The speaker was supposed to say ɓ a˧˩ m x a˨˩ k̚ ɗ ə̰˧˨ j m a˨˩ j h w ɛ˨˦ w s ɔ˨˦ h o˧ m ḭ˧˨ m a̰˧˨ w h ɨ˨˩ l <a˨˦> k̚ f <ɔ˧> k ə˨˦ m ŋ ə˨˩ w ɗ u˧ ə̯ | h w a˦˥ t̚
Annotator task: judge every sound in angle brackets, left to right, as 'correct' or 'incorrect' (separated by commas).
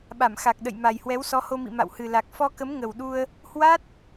incorrect, correct